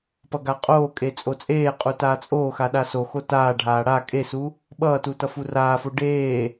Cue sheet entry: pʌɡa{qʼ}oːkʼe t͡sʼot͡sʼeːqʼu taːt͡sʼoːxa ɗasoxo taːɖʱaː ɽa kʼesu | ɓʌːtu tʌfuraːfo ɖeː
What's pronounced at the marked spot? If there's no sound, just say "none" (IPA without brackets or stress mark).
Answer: qʼ